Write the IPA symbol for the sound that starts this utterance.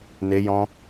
n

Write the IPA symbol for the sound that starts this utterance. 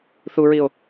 θ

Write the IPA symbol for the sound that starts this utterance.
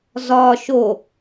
z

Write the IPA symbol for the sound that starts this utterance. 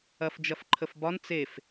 ɐ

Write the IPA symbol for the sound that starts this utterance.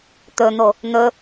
t̪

